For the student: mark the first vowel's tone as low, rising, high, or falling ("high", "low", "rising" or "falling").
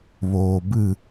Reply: low